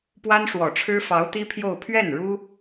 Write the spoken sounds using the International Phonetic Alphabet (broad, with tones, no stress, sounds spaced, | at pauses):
p w a˥ n ʂ w ɔ˨˩ ʈ͡ʂʰ ɻ̩˥ f ɑ˧˥ ʊ̯ t̪ i˥ pʰ j o˥˧ ʊ̯ pʰ ɥ ɛ˥˩ n ɻ u˥